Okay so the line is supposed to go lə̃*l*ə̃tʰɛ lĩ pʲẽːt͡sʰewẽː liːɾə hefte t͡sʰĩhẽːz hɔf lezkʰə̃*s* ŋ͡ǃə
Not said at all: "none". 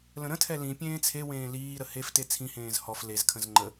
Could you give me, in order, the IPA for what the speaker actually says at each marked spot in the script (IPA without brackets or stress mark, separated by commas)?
ɾ, z